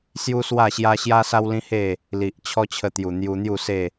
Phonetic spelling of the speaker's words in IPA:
s j u˦ s w a˥˧ ɕ j a˦ ɕ j a˦ s a˦ w l ĩ˦ h e˥˧ | l i˨ ʔ t͡ɕʰ ɔ˦ t͡ɕʰ ə˧ t̪ j u˨˩ n̪ j u˧ n̪ j u˥˧ s e˥˧

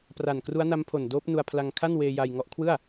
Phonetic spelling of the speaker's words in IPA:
p r a˨˩ n k r u˦˥ a̯ n a˦˥ m pʰ o˨˩ n d oː˦˥ p̚ n u˧ a̯ pʰ l a˧ ŋ kʰ a˥˩ n w eː˧ j a˧ j ŋ ɔ˦˥ ʔ kʰ w ɯ˥˩ a̯

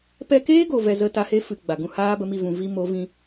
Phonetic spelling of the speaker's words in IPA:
p ɛ˧ k eː˦ ɡ o˨ v ɛ˧ z ə˦ t a˧ h e˦ f ɨ˨ ɡ͡b a˨ ɡ ũ˦ h aː˦ b ə˧ m i˦˨ v ũ˨ v i˦ m o˨˦ v ĩ˧

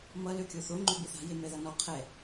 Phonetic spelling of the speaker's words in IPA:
m ʌ l ø kʲ o θ o ŋ͡ǃ ø b i θ a̤ j e m ɛ ð ʌ n ɔ qʰ ɛ

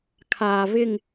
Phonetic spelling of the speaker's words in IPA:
kʰ aː˨ v ɪ˦˨ ŋ

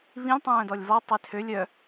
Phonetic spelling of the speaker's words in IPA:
β ĩ lʲ tˤ œ̃ː d ɔ lʲ v ɔ tˤ i tʰ ø lʲ œ

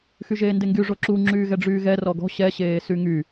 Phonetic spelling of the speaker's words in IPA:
x y ʒ eː n d e ŋ ɡ y ʐ o ǁ u ŋ͡ǁ yː ɣ ɛ ɖ͡ʐ yː ɣ ɛ r ɔ ɡ ɔ̤ ɕ ɛ ɕ eː s y ŋ y

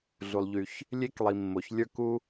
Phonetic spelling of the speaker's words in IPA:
ɮ u˩ lˠ ʎ y˩ ç | lʲ e˥ k lˠ i˩ mː o˩ ç lʲ ə˞˥ k u˥

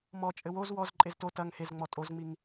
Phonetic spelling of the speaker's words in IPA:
m ɔ t͡ʃʼ ɘ w o z w ɔ z ǃʼ e z t o t ɐ ŋ h e z ŋ͡m ɔ tʼ o z ŋ͡m i ŋ

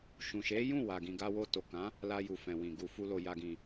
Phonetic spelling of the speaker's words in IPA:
ʃ ũ˨ ʃ e˨˦ j ũ˦˨ w a˨ ɡ ĩ˨ ɡ a˧ w o˧ t o˨ k ã˨˦ | l a˧ j u˨ f ɛ̃˨ w ĩ˧ ɡ u˧ f u˦ l o˧ j a˧ ɡ ĩ˧

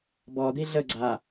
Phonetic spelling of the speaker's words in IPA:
b ɔ d̪ i ɮ ə ɡ͡ǀ a

